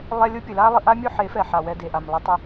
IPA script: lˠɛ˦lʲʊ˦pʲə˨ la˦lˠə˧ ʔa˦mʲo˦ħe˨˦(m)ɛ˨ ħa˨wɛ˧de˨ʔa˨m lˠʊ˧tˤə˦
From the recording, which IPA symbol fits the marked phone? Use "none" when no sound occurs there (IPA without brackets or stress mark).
f